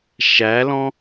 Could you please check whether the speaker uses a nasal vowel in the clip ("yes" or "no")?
yes